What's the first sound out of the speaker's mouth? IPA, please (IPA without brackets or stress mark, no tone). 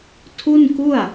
tʰ